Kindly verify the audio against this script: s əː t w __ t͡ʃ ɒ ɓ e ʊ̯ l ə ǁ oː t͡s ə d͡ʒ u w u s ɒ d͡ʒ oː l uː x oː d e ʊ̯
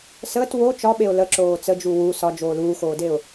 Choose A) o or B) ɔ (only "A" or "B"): A